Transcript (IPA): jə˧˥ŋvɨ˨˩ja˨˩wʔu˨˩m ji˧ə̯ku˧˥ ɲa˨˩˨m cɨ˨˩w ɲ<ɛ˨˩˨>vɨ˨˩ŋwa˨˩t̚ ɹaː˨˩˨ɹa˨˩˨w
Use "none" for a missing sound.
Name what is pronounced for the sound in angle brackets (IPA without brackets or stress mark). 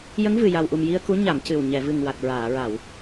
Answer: ɛ˨˩˨